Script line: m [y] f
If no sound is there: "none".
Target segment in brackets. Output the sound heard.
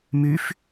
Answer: y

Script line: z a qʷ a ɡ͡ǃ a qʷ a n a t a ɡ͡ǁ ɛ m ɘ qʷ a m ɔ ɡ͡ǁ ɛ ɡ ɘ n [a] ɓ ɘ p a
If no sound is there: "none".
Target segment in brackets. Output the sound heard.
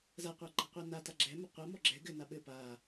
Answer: a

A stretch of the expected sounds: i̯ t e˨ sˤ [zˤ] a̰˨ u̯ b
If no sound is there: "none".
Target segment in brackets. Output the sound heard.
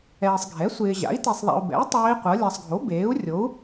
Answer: ðˤ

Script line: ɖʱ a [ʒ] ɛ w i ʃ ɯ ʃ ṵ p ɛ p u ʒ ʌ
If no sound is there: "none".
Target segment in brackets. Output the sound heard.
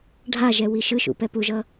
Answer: ʒ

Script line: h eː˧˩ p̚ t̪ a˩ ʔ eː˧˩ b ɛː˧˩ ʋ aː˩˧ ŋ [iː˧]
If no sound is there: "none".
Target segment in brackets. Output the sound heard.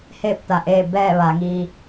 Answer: iː˧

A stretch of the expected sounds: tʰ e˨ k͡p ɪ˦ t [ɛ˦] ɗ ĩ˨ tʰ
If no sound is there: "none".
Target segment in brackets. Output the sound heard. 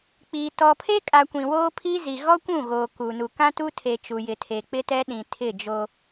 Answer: ɛ˦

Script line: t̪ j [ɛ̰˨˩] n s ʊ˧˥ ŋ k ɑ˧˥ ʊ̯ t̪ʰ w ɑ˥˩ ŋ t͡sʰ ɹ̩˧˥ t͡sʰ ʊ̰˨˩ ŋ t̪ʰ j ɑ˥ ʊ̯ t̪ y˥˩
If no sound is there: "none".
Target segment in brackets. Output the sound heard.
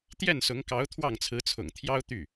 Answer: ɛ˥˩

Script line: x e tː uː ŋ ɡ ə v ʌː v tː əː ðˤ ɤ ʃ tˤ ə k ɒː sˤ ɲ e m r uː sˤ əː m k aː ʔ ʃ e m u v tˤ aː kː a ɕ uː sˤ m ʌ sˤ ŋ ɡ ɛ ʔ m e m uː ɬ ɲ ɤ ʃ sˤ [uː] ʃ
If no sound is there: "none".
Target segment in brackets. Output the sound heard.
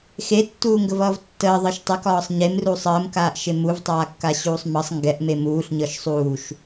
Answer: uː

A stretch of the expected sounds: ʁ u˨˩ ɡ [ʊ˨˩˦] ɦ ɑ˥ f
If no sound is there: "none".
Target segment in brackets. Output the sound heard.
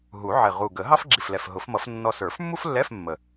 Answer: ə˨˩˦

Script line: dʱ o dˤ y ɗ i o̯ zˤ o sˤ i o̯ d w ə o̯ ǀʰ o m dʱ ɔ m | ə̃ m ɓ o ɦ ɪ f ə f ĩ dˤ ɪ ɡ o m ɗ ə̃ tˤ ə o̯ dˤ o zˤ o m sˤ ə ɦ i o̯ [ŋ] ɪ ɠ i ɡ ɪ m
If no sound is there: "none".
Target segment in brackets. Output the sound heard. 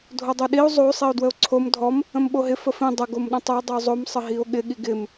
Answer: ɠ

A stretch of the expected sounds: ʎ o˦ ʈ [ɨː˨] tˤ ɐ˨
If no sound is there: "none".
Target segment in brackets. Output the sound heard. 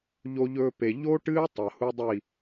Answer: ɨː˦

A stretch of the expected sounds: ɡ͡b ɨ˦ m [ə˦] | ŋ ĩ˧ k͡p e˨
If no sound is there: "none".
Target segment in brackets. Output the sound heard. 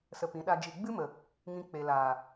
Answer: ə˨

